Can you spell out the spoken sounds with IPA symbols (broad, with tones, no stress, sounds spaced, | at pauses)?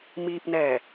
m iː˧ p̚ n ɛː˧˩